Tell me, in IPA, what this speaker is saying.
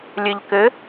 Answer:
lʲɘʎkɘ

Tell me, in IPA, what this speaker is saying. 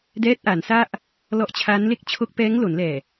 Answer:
dɛː˦˥t̚ʔa˩˦nsa˥˩ʔ | lɔ˦˥ʔt͡ɕʰa˦˥nle˥˩k̚ t͡ɕʰo˦˥k̚pɛː˦˥ŋlo˩˦nlɛː˨˩

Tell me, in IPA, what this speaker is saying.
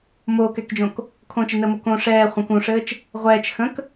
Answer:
moːkɛkd͡ʒõk | kʰõt͡ʃɘnəːmo kõ ʂɛː χʷə̃k ũʂɘːt͡ʃ | ʁʷɛːt͡ʃ xə̃k

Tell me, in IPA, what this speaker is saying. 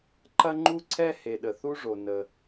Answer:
ǃɐ˥ŋ͡ǃu˥ ǀʰɛ˥he˩ɗə˩ θu˥ʐo˩ nə˩

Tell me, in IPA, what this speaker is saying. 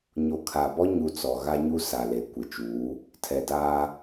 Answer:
ɲo˨ kʰaː˨bɔ˦ ɲu˨ t͡sɔ˨ ɣa˦ɲu˦ sa˨le˨ kʷɪ˨t͡ʃuː˨˦ | tʰɛ˨daː˦

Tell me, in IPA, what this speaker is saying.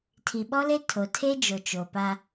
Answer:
tʰi˨ɓɔ˦le˦ tʰo˨tʰe˦d͡ʒo˨ t͡ʃo˨pa˦

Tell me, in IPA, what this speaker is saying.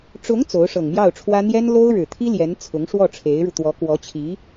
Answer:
ʈ͡ʂʊ˧˥ŋ t͡so˧˥ʊ̯ʂɤ˨˩ŋ mjɑ˥˩ʊ̯ʈ͡ʂʰwä˥ n̪jɛ˥nlo˥ʊ̯ɻɻ̩˨˩t̪ʰi˥ ljɛ˧˥nt͡sʰʊ˧˥ŋ ʂwɔ˥˩ ʈ͡ʂʰe˧˥ɪ̯ɻu˧ t̪wɔ˧˥kwɔ˧˥t͡ɕʰi˧˥

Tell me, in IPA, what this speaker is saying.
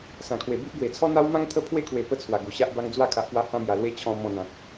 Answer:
sã˨˩kʰwe˨˩bi˦ʔ ɡwe˨˩t͡sʰɔ˦n̪a˦w mã˧ŋt̪ʰə˧pʰwe˧kʰwe˨˩ pə˧t͡sʰwa˨˩ɡu˨˩ ɕa˦ʔba˦ŋ d͡zwa˧kʰa˨ʔ pwa˧ hã˧mja˨˩ lwe˦t͡ɕʰɔ̃˧ mɔ̃˧n̪ã˨k̚

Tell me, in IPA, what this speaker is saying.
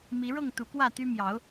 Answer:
mi˨˦ɻɤ˥˨ŋ t̪u˨˦kwä˥˨t̪y˦ mjɑ˨˦ʊ̯

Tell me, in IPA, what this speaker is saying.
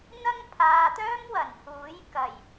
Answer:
n̪ɐ˥ŋ pʰaː˨t̪œː˥mwɐ˨˩n huː˨˥j kɐ˨˩j

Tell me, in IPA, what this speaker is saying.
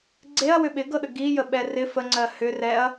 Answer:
ɡ͡ǀeɐ̯ wʏɓɪɡɤɗə ɡijə ɓɛrɪ fəŋ͡ǀɜ hʏ rɛɐ̯

